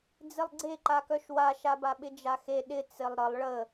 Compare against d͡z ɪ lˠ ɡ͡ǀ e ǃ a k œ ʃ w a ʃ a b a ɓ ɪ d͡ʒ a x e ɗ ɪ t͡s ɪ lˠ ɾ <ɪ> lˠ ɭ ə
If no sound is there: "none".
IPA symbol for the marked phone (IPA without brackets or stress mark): ə